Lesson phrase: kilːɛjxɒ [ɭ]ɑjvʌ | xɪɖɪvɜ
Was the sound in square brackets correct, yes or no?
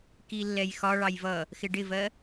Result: yes